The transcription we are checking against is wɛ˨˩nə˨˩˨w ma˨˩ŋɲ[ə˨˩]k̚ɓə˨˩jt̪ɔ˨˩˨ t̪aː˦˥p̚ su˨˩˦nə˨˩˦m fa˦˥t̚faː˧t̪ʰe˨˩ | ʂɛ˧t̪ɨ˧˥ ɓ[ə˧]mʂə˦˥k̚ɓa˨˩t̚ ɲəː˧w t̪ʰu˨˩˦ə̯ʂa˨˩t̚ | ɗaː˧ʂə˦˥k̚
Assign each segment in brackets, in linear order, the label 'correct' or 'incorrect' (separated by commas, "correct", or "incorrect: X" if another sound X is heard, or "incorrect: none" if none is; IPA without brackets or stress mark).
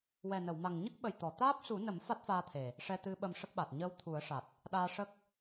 incorrect: ə˦˥, correct